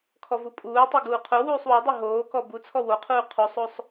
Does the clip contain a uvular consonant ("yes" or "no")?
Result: yes